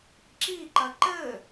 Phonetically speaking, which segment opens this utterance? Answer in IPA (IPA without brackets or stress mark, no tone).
ǁ